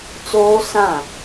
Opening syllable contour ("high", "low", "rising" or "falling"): high